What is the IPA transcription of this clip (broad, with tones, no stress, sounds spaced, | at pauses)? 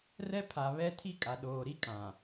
r ɛ˦ pʰ a˨ β ɛ˦ tʰ i˦ kʼ a˨ ɗ oː˨ ɾ i˦ kʼ ã˨